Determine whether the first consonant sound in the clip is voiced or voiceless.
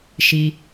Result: voiceless